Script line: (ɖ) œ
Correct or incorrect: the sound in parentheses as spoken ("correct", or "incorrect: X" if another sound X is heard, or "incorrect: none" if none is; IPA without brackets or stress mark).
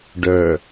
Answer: correct